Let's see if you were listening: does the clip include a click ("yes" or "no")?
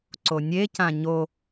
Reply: yes